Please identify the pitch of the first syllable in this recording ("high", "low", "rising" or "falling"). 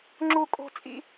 high